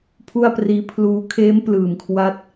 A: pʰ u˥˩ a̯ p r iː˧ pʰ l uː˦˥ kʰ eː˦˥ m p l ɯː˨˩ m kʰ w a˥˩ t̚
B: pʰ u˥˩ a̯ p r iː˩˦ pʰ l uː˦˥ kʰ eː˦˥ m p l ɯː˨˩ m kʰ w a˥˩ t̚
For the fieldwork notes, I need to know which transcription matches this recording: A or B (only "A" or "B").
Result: A